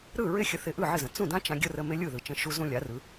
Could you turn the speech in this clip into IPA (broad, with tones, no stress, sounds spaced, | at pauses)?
ɾ ɯ˥˩ ɹ ɪ˥˩ xʲ ə˧ θ ɪ˧ ʔ ɯ˥˩ ʕ ɪ˥˩ z ə̃˩ t͡s ũ˥˩ d ã˥ t͡ʃ ã˧ ɡʲ ə˥ r ə˧ m ɪ˥ lʲ ɯ˥˩ ð ɯ˩ t͡ʃ ə̃˧ ʃ u˧ z ũ˧ lʲ a˩˥ r ɯ˩˥